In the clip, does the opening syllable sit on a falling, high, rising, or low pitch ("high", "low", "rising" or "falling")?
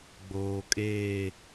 low